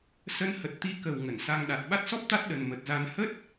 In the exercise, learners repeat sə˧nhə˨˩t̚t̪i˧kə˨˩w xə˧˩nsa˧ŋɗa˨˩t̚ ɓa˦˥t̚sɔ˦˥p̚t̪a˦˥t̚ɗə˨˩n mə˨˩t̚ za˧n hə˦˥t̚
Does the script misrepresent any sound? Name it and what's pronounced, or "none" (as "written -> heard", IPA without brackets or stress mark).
x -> ŋ